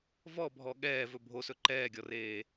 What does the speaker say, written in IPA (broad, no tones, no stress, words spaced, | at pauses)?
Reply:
vɔbʱɔ ɠɛː vɵbʱosɵ ǃɛːɡʲɔreː